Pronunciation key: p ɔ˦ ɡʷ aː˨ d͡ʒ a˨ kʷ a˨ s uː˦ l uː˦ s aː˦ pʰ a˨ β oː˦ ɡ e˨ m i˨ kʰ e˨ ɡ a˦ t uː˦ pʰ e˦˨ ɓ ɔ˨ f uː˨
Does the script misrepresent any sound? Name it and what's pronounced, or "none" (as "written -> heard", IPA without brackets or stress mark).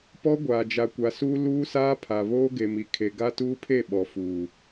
none